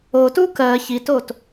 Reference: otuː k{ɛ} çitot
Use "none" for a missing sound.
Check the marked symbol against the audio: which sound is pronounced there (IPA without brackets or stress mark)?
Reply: ɜ